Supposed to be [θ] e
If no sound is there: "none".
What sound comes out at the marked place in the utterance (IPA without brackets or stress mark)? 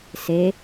s